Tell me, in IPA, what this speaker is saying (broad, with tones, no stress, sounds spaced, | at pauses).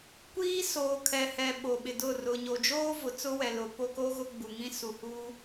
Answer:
kʷ iː˦ s oː˨ kʰ ɛ˨ h ɛ˨ ɓ o˨ ɓ ɪ˨ d ʊ˦˨ r ʊ˨ ɲ o˨ d͡ʒ oː˦ v ʊ˨ t͡s ʊ˦ w ɛ˨ l ʊ˨˦ p o˦ k o˦ ɣ ʊ˦ ɡ͡b u˨ ŋ ĩ˦ s u˨ h u˦